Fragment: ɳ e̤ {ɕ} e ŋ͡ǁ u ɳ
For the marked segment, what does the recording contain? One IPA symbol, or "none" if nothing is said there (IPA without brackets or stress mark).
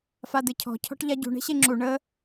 ɕ